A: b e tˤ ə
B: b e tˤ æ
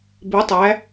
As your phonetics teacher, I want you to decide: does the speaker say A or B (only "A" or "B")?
B